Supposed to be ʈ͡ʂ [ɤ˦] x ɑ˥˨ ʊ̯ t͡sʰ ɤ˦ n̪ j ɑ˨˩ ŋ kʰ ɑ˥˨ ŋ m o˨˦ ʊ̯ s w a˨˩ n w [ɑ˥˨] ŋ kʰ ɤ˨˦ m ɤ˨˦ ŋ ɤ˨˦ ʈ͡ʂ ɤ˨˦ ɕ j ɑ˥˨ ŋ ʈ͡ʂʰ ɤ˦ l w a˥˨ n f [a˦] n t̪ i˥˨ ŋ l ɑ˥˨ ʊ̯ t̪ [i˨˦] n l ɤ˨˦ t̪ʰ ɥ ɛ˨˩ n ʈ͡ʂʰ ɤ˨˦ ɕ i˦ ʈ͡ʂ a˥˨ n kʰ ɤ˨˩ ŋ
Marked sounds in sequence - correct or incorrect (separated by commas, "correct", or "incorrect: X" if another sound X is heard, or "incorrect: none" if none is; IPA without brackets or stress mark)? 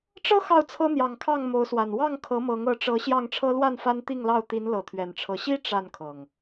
correct, correct, correct, correct